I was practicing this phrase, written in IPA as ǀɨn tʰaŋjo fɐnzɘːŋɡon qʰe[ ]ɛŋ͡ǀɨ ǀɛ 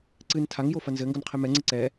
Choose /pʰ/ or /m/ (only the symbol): m